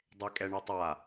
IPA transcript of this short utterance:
dˤ e kʼ ɛ ɳ ɛ tˤ a

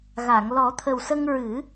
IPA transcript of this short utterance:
ɣ a˨˩˨ ŋ l ɔ˨˩˦ t̪ʰ ə˨˩ w s ə˧ ŋ ɹ ɨ˨˩˦

